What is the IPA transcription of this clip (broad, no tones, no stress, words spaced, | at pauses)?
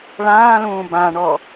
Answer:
ɭãːlũː bãɳɔ